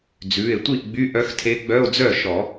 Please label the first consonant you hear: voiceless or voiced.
voiced